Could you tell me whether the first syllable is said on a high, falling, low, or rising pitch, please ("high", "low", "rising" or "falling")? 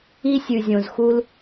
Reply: high